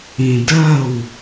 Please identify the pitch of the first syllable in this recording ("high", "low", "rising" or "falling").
low